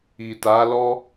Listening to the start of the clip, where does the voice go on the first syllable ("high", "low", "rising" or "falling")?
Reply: low